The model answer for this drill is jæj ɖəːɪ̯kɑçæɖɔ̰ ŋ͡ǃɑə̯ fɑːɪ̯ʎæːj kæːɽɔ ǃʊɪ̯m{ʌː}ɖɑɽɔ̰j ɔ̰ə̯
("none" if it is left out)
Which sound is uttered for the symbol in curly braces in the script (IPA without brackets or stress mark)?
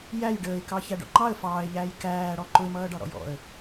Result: ʌː